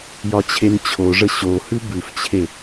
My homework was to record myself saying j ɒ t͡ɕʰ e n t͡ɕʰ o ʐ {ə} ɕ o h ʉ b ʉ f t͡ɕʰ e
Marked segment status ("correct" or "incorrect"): correct